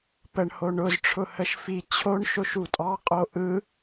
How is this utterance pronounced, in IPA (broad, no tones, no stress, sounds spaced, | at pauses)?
p ə ɳ h o ɳ ʊ z ʈ͡ʂʰ ʊ h ə ʃ f i t͡ɕʰ o ɳ ʃ o ʃ u tʼ ɑ qʼ o ʔ ɯ